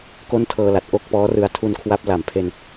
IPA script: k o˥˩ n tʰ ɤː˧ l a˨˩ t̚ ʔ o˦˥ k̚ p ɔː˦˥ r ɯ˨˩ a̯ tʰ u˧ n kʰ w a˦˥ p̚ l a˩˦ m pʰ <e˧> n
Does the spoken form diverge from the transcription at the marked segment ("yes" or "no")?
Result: no